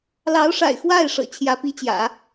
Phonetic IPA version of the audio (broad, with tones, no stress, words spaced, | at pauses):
lɑ˧˥ʊ̯ʂa̰˨˩ɪ̯ xwa˥˩ɪ̯ʂɤ̰˨˩ t͡ɕʰjä˧˥pi˧˥t͡ɕjä̰˨˩˦